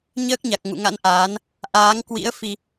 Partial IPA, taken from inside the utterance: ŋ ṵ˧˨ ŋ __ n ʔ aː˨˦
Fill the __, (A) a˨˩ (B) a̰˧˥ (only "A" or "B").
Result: B